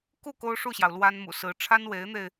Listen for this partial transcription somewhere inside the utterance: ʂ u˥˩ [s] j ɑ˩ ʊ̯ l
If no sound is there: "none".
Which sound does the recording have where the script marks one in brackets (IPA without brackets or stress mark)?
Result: ɕ